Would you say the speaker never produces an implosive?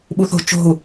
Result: no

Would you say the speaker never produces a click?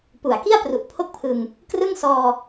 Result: yes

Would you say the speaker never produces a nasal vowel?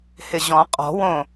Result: no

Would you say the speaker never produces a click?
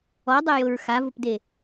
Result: yes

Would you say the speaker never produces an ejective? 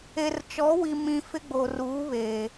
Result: yes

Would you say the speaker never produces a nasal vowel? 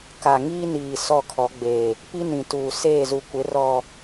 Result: no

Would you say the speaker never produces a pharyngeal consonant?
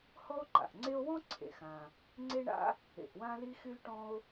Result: yes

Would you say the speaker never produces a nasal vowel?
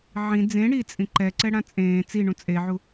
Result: no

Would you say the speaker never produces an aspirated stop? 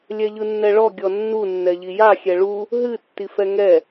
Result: yes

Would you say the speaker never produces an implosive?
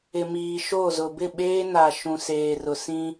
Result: no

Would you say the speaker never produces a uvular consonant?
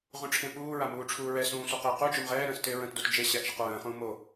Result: no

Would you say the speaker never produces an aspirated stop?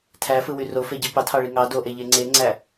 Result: no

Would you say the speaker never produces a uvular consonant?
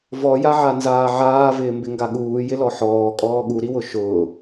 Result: yes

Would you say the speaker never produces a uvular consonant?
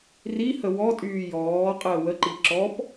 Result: no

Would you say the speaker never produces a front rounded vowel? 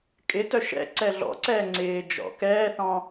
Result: no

